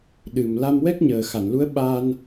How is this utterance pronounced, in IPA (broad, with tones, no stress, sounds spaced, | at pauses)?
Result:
ɗ ɨ˨˩ m l a˧ m w ɛ˦˥ k̚ ɲ əː˨˩ x a˨˩˨ n l u˧˥ ə̯ ɓ a˧ n